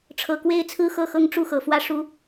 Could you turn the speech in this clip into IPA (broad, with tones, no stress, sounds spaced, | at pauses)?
ʈ͡ʂʰ ɤ˨˩ k w e˥ ɪ̯ t͡sʰ ɹ̩˥ x ɤ˥˧ x ɤ˥˧ ŋ ʈ͡ʂ u˥˩ x ɤ˨˩ f w ä˥˩ ʂ u˥